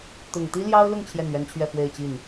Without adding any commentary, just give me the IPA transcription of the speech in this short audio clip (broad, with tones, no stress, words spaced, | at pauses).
t̪ʊ˨˩ŋt̪i˥ljɑ˥ʊ̯lʊ˥˧ŋ t͡ɕʰjɛ˥˩nɥɛ˥nt͡ɕʰɥɛ˥˧ fwe˥˧ɪ̯ t͡ɕi˥˩n